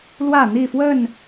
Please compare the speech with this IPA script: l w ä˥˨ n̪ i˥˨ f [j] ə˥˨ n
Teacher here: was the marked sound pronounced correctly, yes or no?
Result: no